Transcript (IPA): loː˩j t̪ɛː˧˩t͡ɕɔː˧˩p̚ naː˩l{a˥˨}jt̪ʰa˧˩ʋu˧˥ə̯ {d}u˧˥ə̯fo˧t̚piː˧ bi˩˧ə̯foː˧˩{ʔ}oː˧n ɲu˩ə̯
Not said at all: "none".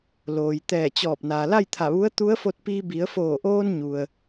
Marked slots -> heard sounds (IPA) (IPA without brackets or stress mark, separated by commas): a˥˨, t̪, ʔ